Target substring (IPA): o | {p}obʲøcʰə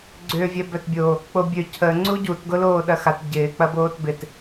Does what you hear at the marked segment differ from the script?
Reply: yes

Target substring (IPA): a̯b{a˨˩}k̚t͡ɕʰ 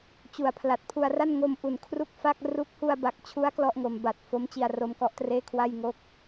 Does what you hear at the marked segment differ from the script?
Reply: no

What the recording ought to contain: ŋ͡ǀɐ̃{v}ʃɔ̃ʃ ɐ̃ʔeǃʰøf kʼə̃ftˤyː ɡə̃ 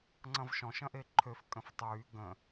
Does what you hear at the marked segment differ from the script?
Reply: no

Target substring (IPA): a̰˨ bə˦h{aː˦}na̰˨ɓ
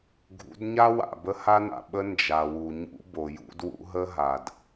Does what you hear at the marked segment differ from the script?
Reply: yes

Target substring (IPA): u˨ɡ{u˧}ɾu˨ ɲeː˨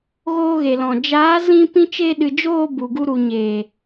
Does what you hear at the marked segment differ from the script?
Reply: no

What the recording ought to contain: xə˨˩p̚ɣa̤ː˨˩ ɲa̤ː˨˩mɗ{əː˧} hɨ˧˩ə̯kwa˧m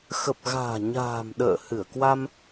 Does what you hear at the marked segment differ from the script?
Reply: yes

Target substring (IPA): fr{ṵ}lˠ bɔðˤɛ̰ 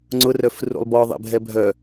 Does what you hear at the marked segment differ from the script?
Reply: no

